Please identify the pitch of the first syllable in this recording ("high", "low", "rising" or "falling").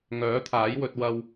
rising